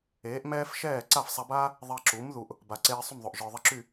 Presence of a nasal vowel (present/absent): absent